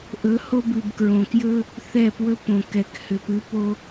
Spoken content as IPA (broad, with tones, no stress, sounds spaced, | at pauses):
ʔ ɵ˨˦ h o˦ b ʉ˨ b k ɹ õ˨ k j ɵ˦ | θ ɛ˦˨ p w ɵ˦ p õ˨ k ɛ˨ k h ʏ˨ p ɨ˨˦ p o˦